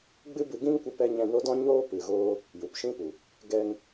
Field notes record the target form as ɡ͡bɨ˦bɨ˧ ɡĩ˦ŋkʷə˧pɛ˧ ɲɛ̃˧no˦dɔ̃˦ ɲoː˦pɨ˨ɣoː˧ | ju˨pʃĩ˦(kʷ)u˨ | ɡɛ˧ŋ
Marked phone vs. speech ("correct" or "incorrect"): incorrect